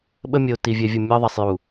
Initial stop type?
implosive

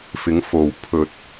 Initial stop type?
aspirated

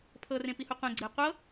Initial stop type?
aspirated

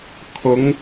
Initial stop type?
aspirated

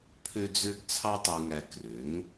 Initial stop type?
aspirated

